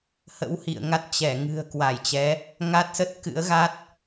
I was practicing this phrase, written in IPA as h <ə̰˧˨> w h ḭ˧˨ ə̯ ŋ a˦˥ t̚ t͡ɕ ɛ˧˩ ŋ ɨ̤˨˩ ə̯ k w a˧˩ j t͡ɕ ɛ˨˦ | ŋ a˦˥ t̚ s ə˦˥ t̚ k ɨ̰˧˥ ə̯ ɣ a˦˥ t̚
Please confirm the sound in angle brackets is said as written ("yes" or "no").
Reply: no